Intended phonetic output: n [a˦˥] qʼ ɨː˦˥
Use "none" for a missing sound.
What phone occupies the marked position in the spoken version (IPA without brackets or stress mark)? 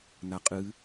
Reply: a˦˥